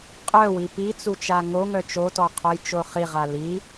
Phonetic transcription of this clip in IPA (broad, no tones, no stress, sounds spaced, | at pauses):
qʼ œ w i p i t͡s u t͡ʃ a ŋ o ŋ œ t͡ʃ o t ɔ qʰ o j t͡ʃ o χ i ʁ a l i